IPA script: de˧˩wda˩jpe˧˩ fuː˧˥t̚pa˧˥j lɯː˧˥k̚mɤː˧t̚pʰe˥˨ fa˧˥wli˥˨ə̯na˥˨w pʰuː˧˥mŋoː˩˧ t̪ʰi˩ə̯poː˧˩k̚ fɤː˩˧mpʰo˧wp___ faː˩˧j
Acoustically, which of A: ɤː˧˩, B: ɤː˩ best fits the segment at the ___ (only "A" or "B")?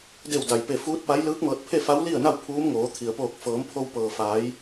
B